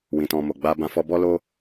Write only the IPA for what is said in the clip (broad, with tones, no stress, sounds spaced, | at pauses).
w ĩ˨ t ɔ̃˨ m o˨ ɡ͡b a˧ b ã˧ f ɔ˧ b ɔ˧ l o˧